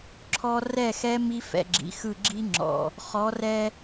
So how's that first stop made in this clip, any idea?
click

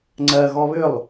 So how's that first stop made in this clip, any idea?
click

